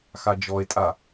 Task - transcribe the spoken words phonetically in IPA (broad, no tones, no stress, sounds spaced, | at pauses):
x a d͡ʒ ɔ e̯ tʼ a